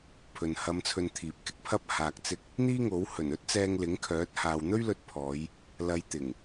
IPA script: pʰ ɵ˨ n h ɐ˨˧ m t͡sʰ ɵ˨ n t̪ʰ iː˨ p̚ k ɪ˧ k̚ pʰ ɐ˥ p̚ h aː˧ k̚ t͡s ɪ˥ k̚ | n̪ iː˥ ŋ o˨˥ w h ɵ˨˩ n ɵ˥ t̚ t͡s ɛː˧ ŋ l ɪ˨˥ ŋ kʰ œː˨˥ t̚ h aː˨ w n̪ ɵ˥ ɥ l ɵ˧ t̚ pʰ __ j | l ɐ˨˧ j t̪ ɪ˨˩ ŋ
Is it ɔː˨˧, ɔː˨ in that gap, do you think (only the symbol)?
ɔː˨˧